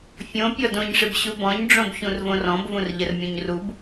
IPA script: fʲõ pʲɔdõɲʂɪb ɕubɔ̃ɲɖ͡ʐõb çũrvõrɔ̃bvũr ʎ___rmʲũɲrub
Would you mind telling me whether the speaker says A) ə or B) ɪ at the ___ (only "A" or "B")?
A